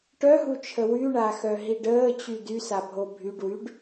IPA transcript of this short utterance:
ʈœɦut͡ʃʰə wyɳaxœɦiɖ əːt͡ɕy dysabʱo bʱyɖwyɖ

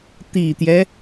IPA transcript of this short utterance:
t̪i˨˩t̪jɛ˦

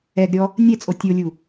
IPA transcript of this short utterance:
ɛɡɾʲɔ | nʲɛt͡sʼo tʲolʲu

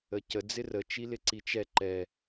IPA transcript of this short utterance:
əcə d͡zɪrə t͡ʃilɪǀit͡ʃɛ ǃɛ

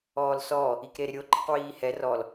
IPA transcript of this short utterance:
ɔːlsɔ | ikɾeɾɪɾʲo ǃɪqwiːhɛ rɔl

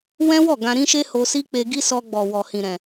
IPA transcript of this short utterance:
wɛ̃˦wɔ˦˨ ɡã˧ɾĩ˦ʃe˦ ho˧si˦k͡pe˧ɡi˦ sɔ˧ɡ͡bɔ˨wɔ˨ hĩ˨ɾɛ̃˨

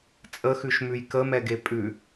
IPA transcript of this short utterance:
t͡sʼəxʉʃmʉj kəmɛɡe pʼʉ

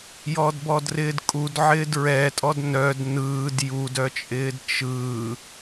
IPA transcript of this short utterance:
jɔdbɔdrɪːdkʼud ʕɪːdɹɛtʼɔd nœd nɯːd judœt͡ʃʼɪːd t͡ʃɯː

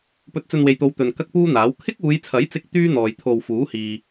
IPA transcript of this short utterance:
pɵ˧t̚t͡sɵ˧nwe˨jt̪o˨˧w t̪ɵ˨n kɐ˥k̚puː˥n̪aː˨˥w kʰɪ˥k̚uː˨˧jt͡sʰɐ˨˥jt͡sɪ˧k̚ t̪yː˥n̪ɔː˨j t̪ʰo˧w fuː˨˥hiː˨

